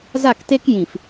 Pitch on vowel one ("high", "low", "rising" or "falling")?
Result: falling